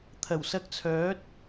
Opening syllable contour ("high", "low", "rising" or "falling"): low